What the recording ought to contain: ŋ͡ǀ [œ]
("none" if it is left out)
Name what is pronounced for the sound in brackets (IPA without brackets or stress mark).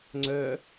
œ